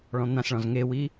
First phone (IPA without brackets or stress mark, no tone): ɭ